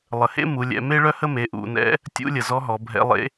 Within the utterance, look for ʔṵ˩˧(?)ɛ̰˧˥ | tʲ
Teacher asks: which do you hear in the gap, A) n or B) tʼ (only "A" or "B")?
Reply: A